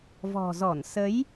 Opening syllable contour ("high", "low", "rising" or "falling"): low